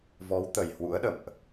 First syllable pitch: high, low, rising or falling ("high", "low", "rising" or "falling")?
rising